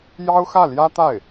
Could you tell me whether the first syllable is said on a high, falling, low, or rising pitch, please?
high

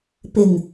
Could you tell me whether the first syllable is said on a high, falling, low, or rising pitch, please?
low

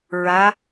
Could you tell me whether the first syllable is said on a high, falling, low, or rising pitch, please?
rising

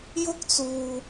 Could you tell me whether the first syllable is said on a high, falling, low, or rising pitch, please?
high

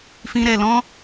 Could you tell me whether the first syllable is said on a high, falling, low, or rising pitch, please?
high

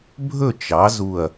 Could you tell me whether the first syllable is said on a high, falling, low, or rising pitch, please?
falling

